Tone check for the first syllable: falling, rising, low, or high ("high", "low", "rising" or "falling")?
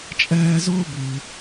high